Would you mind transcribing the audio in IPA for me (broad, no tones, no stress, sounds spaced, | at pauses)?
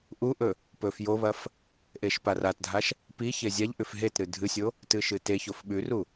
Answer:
ʔ u ʔ ɵ | p ɵ f j o β ɐ f | ʔ e ʃ p a r a t dʱ a ʃ | p i ç e zʲ a ʎ ʔ ʉ f ɦ e t ɾ ɨ dʱ ɨ sʲ o | t ɨ ʃ ɨ t e ç o f ɓ ʉ r u